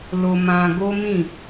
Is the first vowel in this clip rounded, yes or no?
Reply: yes